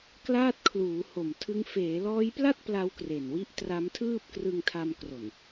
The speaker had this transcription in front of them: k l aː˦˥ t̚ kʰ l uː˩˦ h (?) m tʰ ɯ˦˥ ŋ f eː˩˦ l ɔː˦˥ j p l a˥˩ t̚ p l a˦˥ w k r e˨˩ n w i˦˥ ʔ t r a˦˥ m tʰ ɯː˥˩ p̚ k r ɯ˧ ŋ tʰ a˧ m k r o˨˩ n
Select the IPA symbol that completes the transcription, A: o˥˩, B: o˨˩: B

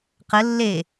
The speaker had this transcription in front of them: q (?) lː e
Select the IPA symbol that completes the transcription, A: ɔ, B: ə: B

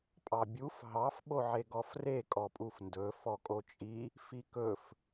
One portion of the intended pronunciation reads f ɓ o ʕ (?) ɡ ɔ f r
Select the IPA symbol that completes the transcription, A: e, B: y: A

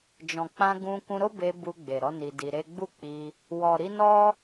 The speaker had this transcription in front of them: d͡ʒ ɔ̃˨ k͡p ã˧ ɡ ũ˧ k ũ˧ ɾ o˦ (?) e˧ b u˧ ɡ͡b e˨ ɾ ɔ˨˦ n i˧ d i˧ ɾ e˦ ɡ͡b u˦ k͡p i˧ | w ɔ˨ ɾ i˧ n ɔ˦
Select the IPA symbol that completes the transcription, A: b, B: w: A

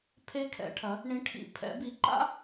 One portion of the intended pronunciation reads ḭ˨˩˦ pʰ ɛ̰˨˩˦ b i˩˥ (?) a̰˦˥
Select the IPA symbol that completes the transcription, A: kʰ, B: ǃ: B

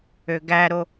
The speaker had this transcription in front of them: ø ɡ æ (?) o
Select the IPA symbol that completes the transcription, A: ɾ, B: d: A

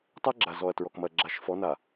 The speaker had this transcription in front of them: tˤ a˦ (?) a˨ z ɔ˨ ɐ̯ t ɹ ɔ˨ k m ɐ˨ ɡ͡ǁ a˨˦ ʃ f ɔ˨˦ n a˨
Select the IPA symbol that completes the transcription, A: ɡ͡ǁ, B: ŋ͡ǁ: A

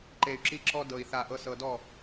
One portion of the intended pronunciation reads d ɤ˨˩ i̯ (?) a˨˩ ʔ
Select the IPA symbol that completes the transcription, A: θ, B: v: A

